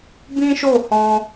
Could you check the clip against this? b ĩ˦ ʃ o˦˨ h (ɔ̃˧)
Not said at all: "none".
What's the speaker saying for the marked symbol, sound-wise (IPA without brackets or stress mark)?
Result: ɔ̃˧